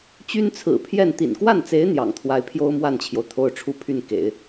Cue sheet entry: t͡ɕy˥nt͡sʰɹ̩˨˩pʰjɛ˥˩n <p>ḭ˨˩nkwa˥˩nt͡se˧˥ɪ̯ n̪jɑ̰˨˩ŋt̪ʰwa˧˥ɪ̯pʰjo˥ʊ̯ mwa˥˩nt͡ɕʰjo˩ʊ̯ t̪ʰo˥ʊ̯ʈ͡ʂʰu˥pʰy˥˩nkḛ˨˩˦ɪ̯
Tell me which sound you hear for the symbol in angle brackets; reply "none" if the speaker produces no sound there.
t̪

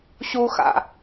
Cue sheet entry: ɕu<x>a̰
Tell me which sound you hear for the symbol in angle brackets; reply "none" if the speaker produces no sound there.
x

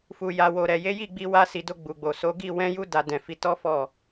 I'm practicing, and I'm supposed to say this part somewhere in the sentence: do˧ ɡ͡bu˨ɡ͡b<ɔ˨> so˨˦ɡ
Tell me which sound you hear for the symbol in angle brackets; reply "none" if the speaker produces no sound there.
o˨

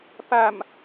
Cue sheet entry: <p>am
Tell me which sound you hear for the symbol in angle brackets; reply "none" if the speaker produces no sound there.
p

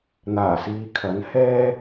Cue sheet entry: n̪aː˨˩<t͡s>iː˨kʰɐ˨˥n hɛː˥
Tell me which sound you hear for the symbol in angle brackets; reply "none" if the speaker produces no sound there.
s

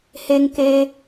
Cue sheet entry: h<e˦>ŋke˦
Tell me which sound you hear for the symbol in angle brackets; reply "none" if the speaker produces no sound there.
e˦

